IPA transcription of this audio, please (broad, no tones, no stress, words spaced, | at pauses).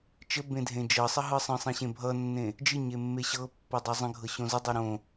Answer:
t͡ʃəbẽ dʱẽd͡ʒɤsˤə ɦɯsˤə̃sˤẽ ɕẽbʱʌnːẽ | d͡ʒɨ ɲemːeɕɤpːɤ dˤɤzˤə̃ɡʱɤ ɕõzədˤɤ ɾõ